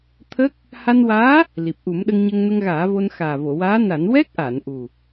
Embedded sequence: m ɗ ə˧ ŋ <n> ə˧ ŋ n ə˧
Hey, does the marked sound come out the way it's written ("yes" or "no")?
no